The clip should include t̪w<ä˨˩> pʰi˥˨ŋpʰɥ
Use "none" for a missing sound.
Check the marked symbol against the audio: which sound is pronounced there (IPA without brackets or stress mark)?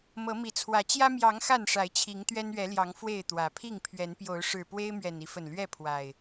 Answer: ä˨˩